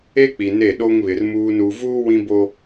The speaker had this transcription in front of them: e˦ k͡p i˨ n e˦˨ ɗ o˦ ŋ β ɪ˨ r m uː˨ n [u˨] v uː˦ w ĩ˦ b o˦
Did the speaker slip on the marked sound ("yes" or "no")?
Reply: no